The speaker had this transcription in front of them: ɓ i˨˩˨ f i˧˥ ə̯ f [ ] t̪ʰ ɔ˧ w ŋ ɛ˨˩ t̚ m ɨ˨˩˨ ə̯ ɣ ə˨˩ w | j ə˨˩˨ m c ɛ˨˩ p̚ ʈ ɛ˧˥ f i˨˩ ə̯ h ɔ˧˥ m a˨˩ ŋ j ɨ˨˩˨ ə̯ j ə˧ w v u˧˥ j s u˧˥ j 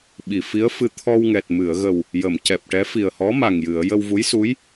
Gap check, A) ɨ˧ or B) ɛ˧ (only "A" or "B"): A